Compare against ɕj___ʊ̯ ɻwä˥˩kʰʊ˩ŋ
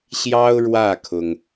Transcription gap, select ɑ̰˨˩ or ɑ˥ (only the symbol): ɑ˥